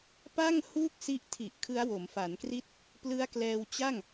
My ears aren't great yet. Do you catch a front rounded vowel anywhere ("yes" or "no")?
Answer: no